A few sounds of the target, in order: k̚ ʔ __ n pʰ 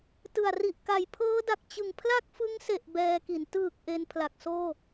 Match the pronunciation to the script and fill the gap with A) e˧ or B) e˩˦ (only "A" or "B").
A